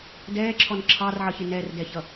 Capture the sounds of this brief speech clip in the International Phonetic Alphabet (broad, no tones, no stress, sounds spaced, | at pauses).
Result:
d ɛː ǁʰ ɔ n ǁʰ ɑ r ʕ ʌ ç ɪ n ɛ r d ɛ ç ʌ